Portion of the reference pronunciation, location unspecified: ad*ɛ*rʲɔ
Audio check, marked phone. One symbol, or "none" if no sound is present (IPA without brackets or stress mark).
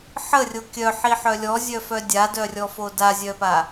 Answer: œ